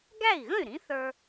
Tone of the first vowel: falling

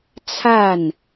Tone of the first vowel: falling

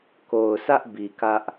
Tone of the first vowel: low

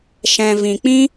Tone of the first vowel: low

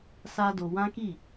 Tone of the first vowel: high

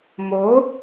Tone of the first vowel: rising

